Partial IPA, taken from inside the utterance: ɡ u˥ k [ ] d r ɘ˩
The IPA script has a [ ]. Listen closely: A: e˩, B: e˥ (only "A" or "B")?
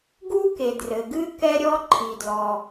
A